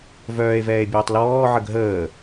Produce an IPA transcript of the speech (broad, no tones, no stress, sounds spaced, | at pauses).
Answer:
v œː e̯ v ɛː e̯ bʲ œː tˤ l ɔː ʕ ə ɡ ɦ əː